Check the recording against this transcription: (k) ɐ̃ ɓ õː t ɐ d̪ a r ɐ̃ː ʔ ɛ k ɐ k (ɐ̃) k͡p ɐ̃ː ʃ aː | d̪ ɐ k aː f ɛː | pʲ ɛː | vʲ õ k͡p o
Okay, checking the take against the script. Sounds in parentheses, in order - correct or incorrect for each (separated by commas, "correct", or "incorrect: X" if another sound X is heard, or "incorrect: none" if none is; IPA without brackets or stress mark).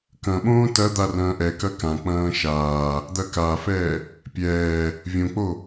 correct, incorrect: ã